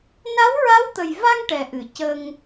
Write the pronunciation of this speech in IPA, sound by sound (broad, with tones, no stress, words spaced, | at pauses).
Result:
na˧˥wɹa˧˥wt̪ə˨˩jva˧ŋ ʈɛ˨˩ʔɨ˨˩˨ cə˧ŋ